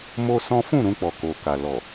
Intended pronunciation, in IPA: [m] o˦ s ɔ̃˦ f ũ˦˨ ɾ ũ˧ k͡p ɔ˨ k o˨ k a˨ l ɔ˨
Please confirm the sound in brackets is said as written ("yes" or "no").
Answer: yes